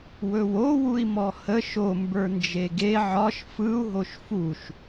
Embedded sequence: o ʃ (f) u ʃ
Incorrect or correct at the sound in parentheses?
correct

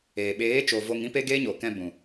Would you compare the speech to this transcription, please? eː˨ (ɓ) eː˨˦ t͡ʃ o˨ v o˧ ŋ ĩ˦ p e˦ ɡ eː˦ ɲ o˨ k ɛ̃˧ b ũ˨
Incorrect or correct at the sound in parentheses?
correct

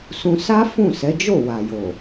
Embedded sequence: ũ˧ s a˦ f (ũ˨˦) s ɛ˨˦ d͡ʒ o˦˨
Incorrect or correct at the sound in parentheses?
incorrect: ũ˦˨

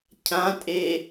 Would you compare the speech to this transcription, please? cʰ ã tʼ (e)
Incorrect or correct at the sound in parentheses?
correct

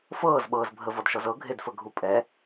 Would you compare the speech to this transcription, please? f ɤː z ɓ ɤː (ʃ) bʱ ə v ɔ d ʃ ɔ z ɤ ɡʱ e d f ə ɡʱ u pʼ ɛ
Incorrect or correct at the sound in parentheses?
incorrect: z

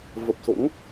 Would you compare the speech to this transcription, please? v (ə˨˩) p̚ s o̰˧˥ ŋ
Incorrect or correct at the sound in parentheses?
correct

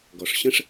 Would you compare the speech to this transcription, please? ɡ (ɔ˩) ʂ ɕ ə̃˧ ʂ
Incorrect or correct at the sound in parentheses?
correct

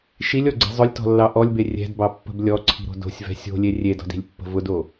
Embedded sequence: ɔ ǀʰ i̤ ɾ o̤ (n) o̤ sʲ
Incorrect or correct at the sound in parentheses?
incorrect: d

